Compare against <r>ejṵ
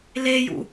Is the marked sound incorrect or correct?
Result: incorrect